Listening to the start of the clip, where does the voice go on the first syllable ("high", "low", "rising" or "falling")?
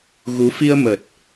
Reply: rising